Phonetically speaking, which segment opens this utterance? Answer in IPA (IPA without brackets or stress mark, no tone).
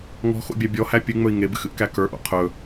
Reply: ŋ